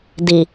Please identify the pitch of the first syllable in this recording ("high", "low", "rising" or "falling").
low